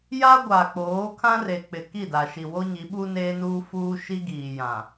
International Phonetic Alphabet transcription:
j a˦ ɡʷ a˨ k͡p oː˨˦ kʰ ã˦ r e˨ k͡p ɪ˨ k i˦˨ d a˨ ʃ i˨ w o˦ ɲ i˨˦ ɓ u˦ n eː˦ n uː˦ f uː˦ ʃ i˦ ɡ iː˨ j ã˨

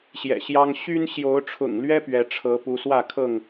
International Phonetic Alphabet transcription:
ɕ j ɛ̰˨˩ ɕ j ɑ˦ ŋ ɕ y˦ n ɕ j o˨˦ ʊ̯ ʈ͡ʂʰ ʊ̰˨˩ ŋ l ɥ ɛ˦ p ɥ ɛ˨˦ ʈ͡ʂʰ ɤ˨˦ p u˨˦ s w ä˥˨ kʰ ɤ˥˨ ŋ

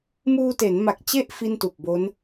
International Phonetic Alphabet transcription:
m uː˧ t e˩˦ n m a˨˩ k̚ t͡ɕ e˥˩ ʔ f i˥˩ n t u˨˩ k̚ b o˦˥ n

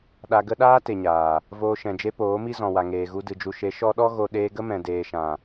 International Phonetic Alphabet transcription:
ɗ a˧ ɡ ə˦ ɗ aː˦ t e˨ ɲ aː˨ | v oː˧ ʃ ɛ̃˨ d͡ʒ e˦ p oː˨˦ m i˦ z ɔ̃˨ w a˨ ŋ eː˨ ɣ u˧ d ɨ˨ d͡ʒ u˨ ʃ e˨˦ ʃ ɔ˧ ɗ ɔ˦ ɣ o˧ ɗ eː˧ ɡ ə˦ m ɛ̃˨ d eː˨ ʃ ã˨

